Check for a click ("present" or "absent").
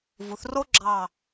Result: present